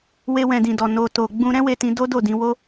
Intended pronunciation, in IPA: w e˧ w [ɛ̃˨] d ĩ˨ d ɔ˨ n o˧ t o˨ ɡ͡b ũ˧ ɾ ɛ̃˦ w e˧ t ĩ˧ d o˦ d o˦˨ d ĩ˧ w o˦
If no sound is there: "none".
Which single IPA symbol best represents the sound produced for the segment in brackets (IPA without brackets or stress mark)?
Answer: ɛ̃˨